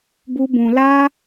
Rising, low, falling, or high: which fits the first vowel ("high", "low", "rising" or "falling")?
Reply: high